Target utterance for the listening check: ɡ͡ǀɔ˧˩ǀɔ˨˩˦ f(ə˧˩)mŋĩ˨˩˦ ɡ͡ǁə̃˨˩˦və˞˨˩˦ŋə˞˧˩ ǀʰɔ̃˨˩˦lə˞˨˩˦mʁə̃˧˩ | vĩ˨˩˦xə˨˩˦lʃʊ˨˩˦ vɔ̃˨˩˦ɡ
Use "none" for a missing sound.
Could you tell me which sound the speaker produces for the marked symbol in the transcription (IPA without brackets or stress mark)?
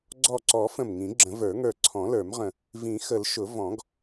ə̃˧˩